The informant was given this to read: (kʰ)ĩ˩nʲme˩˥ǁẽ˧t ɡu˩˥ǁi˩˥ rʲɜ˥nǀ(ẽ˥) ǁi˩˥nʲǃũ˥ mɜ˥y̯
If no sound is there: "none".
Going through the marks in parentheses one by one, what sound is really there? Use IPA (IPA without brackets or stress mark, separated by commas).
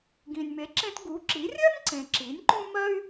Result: ɡ, ẽ˩